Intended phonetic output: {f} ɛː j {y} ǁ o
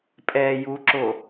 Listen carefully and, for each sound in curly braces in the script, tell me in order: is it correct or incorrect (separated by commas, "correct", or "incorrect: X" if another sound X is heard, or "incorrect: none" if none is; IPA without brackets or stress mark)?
incorrect: pʼ, incorrect: u